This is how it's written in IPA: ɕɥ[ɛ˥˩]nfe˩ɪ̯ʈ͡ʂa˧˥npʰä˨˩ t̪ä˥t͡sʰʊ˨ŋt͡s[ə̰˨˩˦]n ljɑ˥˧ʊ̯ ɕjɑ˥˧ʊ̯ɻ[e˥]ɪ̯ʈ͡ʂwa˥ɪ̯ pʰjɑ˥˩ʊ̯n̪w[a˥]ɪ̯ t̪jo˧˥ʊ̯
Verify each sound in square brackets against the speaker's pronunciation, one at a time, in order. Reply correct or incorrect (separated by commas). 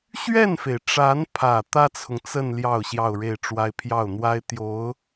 correct, incorrect, incorrect, correct